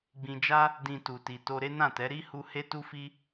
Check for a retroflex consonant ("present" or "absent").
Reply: absent